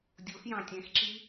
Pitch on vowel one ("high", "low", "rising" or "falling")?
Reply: rising